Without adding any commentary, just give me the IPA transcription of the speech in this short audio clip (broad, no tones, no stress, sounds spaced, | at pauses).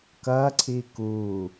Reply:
k ɐː ǀʰ iː k uː